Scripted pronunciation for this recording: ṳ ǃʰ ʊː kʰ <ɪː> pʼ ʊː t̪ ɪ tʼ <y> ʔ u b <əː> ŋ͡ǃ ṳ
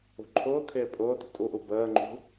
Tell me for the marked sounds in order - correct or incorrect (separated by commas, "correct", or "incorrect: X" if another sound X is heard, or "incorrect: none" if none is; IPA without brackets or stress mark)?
correct, incorrect: u, correct